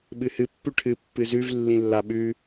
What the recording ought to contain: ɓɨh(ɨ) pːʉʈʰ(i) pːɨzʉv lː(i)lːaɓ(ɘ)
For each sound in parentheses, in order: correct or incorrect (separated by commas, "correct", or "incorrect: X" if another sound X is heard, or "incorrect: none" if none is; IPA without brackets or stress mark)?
correct, incorrect: ɨ, incorrect: ĩ, incorrect: ʉ